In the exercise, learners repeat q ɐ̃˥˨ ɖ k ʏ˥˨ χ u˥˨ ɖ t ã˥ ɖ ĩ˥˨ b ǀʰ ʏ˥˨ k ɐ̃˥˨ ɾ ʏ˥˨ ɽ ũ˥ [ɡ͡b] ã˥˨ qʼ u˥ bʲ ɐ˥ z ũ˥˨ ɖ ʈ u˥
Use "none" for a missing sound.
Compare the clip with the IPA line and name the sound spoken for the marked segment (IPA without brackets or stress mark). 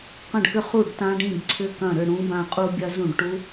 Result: b